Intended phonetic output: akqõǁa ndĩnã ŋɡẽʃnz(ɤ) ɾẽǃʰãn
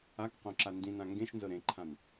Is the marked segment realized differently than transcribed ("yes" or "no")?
no